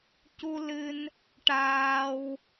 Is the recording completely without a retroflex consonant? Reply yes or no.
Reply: no